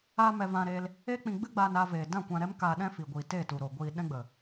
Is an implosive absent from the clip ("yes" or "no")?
no